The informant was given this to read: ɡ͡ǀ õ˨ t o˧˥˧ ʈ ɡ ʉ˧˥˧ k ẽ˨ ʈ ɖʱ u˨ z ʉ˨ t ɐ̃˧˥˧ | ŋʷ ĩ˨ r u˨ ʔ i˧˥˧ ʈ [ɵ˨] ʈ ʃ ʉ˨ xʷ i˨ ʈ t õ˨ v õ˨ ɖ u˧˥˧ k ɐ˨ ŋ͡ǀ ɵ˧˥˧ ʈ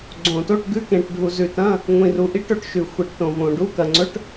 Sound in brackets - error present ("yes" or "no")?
no